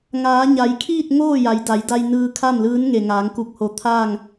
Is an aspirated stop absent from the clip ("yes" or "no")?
no